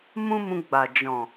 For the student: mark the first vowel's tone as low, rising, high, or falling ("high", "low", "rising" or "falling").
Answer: high